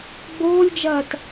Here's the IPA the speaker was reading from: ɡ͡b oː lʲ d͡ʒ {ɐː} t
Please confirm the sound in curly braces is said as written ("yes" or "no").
yes